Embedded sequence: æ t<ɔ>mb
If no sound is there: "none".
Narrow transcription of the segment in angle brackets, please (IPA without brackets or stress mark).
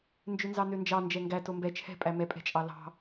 o